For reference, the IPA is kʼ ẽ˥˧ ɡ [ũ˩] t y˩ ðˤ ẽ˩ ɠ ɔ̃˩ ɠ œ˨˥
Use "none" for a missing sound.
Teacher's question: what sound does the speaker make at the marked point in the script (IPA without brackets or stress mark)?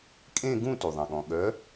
ũ˥˧